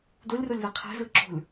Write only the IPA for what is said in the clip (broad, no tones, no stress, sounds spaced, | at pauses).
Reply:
d o lʲ r o lʲ ð ɛ qʰ ɛ̤ z ɯ ǁ o̤ lʲ